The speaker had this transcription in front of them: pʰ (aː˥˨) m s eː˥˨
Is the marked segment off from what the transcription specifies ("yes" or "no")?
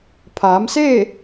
yes